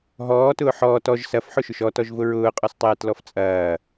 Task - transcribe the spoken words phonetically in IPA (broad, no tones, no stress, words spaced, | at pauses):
ɦɔːtʊː ħɔːt ɔʒ sɐfħʊʃʊʃ ɔtɔʒvʊ ɹʊːqʼɔstˤɛːtlɔf t͡sʼɐː